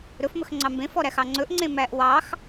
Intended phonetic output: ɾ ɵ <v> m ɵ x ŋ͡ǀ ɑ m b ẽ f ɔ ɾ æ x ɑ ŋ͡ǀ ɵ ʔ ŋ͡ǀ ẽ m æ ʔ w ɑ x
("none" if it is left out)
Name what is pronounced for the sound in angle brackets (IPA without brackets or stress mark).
f